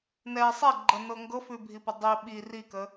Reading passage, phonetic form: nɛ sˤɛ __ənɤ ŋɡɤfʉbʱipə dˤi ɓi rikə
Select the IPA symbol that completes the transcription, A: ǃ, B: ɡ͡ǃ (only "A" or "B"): B